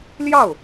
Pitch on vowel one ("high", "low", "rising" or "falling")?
falling